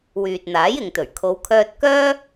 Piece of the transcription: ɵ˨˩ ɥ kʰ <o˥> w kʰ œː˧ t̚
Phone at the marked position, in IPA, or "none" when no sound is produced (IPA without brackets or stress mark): o˨˧